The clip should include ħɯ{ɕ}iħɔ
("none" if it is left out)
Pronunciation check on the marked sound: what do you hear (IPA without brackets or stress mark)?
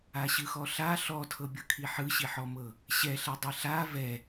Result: ɕ